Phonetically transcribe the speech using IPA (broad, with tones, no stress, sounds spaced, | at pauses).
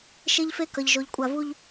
ʃ e˦ ʎ f e˦ k ʌ˨ ʎ ʒ o˨ ʎ kʷʼ a˨ v u˦ ʎ